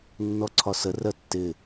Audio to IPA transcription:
nː ɔ ǀʰ ɒ s ə r ɜ tː ɪ

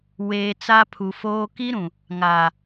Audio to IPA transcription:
w eː˨ t͡s a˦ pʰ u˨ f oː˦ k i˦ ɾ ũ˨ | ŋ a˨

